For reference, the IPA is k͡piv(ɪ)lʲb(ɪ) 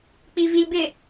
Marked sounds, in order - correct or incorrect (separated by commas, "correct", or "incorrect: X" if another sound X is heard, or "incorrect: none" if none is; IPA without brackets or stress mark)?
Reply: incorrect: i, correct